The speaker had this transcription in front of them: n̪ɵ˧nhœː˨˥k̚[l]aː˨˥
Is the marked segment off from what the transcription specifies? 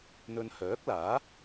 no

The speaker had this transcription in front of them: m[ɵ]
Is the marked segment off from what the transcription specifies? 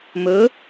no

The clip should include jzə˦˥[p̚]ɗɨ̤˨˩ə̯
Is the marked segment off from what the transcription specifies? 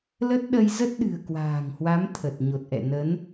yes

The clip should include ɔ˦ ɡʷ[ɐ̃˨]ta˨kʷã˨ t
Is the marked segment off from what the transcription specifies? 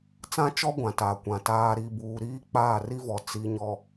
yes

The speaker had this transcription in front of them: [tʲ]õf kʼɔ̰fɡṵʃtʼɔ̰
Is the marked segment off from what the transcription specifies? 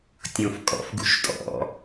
no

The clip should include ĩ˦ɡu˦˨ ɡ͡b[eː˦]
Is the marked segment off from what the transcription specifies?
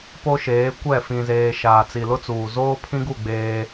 no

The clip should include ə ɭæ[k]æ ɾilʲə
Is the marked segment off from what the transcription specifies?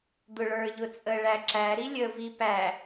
yes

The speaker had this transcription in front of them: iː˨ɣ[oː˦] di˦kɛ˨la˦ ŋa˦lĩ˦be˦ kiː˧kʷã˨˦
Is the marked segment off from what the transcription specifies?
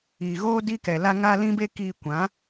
no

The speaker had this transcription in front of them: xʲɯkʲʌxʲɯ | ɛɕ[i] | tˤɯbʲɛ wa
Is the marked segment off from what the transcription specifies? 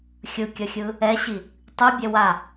no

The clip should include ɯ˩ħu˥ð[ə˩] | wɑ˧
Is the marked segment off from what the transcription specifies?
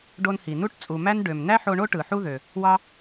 yes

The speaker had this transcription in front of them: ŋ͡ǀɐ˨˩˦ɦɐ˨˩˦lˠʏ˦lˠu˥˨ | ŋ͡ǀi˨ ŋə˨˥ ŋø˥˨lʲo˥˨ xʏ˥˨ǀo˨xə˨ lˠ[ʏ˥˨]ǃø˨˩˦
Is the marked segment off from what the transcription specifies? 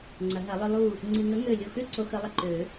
yes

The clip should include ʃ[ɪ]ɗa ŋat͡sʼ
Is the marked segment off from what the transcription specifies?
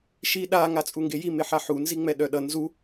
yes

